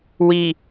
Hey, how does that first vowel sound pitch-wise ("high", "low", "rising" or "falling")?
low